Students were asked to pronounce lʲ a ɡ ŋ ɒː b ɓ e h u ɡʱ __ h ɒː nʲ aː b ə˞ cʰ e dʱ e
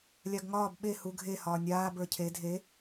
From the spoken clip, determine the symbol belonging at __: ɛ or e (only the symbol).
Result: e